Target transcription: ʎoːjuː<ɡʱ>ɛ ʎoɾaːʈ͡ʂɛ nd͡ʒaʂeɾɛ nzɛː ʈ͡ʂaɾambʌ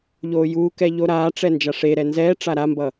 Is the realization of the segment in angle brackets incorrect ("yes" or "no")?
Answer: yes